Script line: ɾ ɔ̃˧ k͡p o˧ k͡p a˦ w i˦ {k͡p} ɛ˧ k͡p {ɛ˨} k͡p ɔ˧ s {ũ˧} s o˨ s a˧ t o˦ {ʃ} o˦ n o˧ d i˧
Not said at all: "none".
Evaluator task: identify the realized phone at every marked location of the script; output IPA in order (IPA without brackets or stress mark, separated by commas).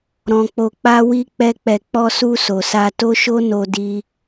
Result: k͡p, ɛ˨, u˧, ʃ